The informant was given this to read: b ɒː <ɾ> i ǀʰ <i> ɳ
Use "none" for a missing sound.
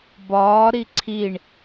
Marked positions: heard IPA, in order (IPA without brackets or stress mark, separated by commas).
ɾ, i